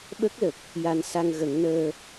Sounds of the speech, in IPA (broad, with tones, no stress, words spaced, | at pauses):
ɓə˦˥k̚lə˨˩k̚ | ja˧n sa˧ŋɣə˨˩˦ŋnəː˧